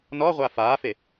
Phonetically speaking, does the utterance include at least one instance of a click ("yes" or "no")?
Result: no